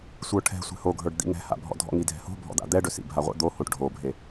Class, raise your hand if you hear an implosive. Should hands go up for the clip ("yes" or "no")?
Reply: no